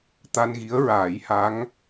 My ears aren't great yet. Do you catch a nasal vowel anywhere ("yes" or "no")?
no